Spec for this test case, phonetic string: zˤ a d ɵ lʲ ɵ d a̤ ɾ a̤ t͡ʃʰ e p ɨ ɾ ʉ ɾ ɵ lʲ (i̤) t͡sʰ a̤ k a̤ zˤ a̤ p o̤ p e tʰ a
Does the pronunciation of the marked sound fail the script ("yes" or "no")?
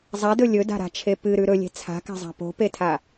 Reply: yes